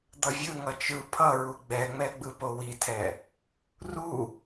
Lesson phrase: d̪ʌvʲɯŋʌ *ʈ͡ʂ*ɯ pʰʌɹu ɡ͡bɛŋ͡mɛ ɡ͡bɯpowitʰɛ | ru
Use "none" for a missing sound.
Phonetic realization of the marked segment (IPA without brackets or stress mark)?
t͡ʃ